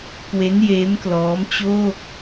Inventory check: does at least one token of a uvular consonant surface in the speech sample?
no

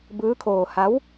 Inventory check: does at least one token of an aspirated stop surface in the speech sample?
yes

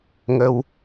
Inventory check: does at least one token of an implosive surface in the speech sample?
no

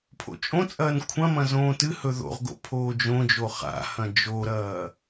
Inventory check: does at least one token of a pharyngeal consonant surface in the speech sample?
no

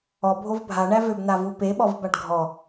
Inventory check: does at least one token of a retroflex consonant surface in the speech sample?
yes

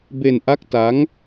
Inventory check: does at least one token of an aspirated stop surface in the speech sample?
no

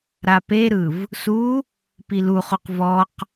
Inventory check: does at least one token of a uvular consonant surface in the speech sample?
yes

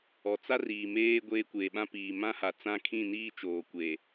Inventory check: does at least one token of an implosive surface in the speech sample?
yes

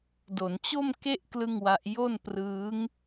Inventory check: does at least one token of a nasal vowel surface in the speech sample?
no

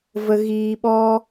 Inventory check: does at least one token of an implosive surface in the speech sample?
yes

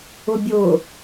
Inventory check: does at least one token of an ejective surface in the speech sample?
no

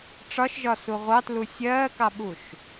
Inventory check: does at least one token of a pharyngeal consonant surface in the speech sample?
no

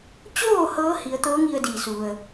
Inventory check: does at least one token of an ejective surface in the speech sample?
no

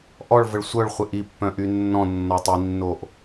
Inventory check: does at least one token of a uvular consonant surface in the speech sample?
yes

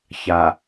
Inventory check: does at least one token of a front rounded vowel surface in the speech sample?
no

